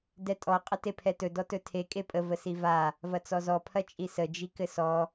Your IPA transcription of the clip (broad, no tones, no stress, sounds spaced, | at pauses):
d ɛ tʼ ɔ qʼ ə t e pʰ ɛ t ɵ d ɔ t ɵ tʰ e kʼ e pʼ ə v ə s i v a | v ɐ t͡s ɔ z ɔ pʰ ɐ t͡ʃʼ i s ə d͡ʒ i k ɘ s ɔ